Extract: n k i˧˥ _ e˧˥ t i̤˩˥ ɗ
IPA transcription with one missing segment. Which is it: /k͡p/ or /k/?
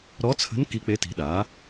k͡p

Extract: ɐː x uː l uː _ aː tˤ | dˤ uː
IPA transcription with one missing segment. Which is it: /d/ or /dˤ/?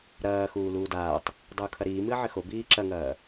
d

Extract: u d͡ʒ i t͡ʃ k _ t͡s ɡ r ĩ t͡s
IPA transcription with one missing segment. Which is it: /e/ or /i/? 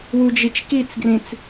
i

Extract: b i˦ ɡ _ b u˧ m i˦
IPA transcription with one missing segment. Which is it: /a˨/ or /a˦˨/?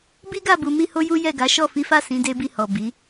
a˦˨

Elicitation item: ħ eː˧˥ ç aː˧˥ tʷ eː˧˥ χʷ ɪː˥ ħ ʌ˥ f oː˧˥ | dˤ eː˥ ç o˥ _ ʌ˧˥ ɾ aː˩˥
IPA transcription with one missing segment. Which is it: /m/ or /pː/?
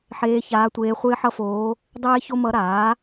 m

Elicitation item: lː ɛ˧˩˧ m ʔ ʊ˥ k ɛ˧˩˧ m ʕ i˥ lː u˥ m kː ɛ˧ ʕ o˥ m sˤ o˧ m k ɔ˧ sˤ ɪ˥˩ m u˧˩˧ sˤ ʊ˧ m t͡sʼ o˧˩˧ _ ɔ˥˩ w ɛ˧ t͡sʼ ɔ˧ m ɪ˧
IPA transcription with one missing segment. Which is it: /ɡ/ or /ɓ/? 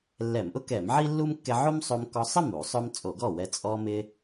ɡ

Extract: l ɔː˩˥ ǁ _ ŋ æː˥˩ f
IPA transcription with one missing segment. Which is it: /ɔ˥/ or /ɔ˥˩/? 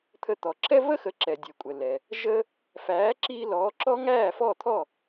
ɔ˥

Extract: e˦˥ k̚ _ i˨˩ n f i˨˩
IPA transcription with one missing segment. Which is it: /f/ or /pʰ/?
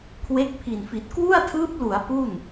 pʰ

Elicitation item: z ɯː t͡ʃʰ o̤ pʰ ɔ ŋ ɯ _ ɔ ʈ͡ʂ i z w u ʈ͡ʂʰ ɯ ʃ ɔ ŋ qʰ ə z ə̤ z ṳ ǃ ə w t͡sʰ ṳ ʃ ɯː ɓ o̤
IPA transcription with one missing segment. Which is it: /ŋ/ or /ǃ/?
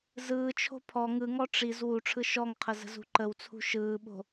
ŋ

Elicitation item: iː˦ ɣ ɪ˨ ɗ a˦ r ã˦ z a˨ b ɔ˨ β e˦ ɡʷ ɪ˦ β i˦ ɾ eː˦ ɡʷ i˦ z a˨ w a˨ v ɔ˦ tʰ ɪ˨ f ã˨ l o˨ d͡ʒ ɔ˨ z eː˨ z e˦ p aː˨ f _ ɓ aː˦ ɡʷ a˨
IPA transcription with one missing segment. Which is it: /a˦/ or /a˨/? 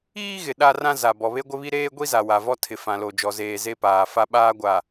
a˦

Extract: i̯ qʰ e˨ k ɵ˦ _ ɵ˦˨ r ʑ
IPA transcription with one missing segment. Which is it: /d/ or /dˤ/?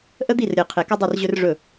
dˤ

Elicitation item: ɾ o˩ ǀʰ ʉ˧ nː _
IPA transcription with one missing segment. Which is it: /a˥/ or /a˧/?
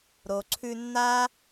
a˥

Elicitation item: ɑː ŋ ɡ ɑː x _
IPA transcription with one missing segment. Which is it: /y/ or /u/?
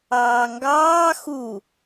u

